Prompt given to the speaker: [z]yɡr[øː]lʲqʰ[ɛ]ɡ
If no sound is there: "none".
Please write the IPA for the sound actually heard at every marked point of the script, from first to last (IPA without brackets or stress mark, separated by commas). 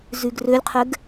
z, ø, ɛ